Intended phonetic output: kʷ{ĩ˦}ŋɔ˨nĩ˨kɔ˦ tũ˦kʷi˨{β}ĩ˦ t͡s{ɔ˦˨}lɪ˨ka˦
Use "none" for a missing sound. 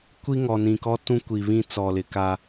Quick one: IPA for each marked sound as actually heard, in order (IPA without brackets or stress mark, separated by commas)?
i˦, β, ɔ˨